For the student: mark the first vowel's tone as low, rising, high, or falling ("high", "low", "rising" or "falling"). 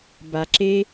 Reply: low